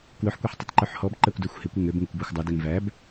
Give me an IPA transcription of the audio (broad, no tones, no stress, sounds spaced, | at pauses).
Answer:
k w ɵ ħ kʷ e ħ tˤ e tˤ ǃ ʉ ħ h ɔ b ǃ æ kʷ d æ xʷ h e kʷ ø ŋ ø b ŋ ɵ kʷ b ɔ xʷ dˤ ɵ d ɛ ŋ v æ b